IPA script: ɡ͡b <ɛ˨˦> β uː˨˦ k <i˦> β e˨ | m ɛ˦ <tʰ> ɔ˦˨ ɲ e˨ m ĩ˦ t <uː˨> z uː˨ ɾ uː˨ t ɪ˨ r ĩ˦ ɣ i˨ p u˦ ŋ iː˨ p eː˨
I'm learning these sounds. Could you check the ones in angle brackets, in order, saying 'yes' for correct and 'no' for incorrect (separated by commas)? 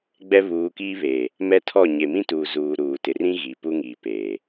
no, no, yes, yes